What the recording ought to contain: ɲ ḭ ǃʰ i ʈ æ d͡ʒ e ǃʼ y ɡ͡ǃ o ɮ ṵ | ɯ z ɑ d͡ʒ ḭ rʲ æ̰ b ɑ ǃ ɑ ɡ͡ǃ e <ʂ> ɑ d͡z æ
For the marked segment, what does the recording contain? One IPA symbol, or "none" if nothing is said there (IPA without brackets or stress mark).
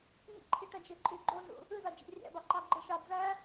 ʃ